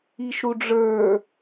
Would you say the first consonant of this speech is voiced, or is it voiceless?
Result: voiceless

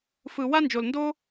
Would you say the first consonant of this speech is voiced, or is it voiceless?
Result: voiceless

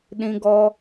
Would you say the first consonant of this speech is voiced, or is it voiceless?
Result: voiced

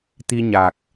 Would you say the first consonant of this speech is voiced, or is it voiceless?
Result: voiceless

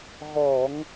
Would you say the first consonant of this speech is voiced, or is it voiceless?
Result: voiced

